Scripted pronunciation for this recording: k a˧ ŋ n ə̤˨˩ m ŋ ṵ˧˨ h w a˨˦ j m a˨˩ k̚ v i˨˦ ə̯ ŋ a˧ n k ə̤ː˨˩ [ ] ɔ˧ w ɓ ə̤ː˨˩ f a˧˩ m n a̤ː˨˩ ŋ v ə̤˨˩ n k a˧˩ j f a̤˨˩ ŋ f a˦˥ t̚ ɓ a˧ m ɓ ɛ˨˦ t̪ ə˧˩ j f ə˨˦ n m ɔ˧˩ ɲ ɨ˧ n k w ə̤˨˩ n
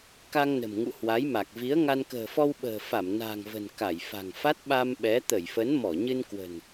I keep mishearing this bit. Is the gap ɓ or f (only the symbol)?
f